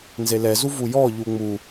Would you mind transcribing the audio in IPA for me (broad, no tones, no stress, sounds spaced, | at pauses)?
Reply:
n z e l ɛ z u v u j ɔ ʎ u ŋ͡m u